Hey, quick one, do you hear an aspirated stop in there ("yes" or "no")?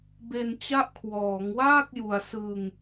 yes